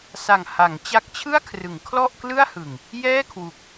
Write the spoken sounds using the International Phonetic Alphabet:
sa˨˩ŋha˩˦ŋt͡ɕa˦˥k̚t͡ɕʰɯ˥˩a̯ kʰrɯ˩˦ŋkʰlɔ˥˩ʔklɯ˥˩a̯hɯ˨˩ŋ | jɛː˥˩kʰwu˨˩k̚

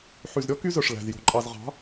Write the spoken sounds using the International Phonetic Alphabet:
ħy˨zɾʲɔ˦ ky˦zœ˨ʂ læ̤˨z jo̤˨ǃʼɑ˨zʁɑ̤˨˦

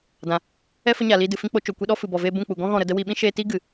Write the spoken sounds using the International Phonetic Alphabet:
dã˨ | ɛ˦ fə˦ɲaː˨liː˧ dɨ˨fĩ˧k͡po˧ t͡ʃo˨kʷi˧ ɗɔ˦fɨ˨bɔ˨veː˧ bũ˦˨k͡pu˨ ɡɔ̃˦ ɣɔ̃˦˨ɾə˧də˦ wi˧ ɓĩ˦ʃeː˧ti˦ ɡɨ˨

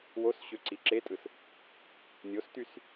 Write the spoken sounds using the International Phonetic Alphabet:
wosɕø ǀiǁetʼɯs | nʲostys

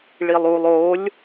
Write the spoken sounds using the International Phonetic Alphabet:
ɭilˠulˠ olʲ

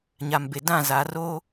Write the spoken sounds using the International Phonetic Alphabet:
ɲa˨mbe˨ dã˦˨za˨ roː˦

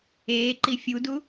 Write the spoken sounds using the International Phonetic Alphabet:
eːǃi fʲudu

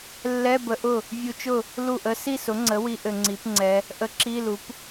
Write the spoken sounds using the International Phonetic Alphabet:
lːɛ˧˥˧bə˧ʔʊ˥˩ | vʲu˧t͡ʃʊ˥˩ | lu˥˩ʔə˧˥ si˥˩sʊ˩˥ŋ͡ǀə˩˥wi˧ ʔɘ˧ŋ͡ǀi˩˥pŋ͡ǀɛ˧˥ | ʔə˧˥ǁi˧˥˧lu˩˥p

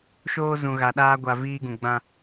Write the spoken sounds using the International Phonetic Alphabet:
ʃoː˦zũ˨ɣa˨ɗaː˦ ɡʷa˨ viː˦ɡũ˨ ɡ͡bã˦

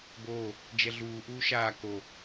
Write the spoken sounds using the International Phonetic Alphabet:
boː | d͡ʒɛɮuː ʔuːʃaː ko

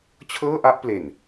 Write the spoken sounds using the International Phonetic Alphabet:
t͡ɕʰɤː˥˩ʔa˥˩ʔ ple˨˩n

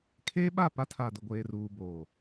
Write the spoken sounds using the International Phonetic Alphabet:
kʰeː˦ɓa˦˨pa˦tʰa˨ dʊ˨ɡʷeː˨ruː˨ boː˨

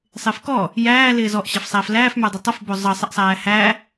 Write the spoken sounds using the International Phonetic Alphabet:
sˤɪːfkɔ | jæː lɪːzɔʔ ɕæfsˤæːflæːf mə˞dˤɪtˤʌf bozˤʌ sˤɪʔsˤæːhæ

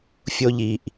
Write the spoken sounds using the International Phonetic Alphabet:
fʲo˥ʎi˩˧˩ʔ

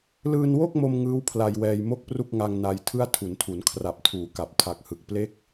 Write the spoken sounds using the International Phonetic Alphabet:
lɯː˧nwo˥˩k̚mo˧m ŋɯː˦˥wpʰla˧jwɛː˧jmo˥˩k̚ pru˥˩k̚ŋa˧ŋ na˧j tʰɯ˥˩a̯tʰu˩˦ntʰu˩˦n kʰra˨˩p̚tʰuː˩˦ka˨˩p̚ tʰa˨˩k̚hɯ˨˩k̚ple˥˩k̚

